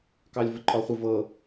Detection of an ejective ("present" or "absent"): present